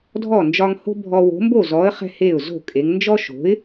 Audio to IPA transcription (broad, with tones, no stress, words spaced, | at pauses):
dʱɔ˥˩nd͡ʒɒ˦ŋ ho̤˦ bʱɔ˦ wo̤˨˥mbo˥˩zɔ˨˥ə̯ χɛ̤˦he˥˩ʊ̯zo̤˥˩kʼe˨˥ŋ nd͡ʒɔ˦ʃo̤˨˥ɪ̯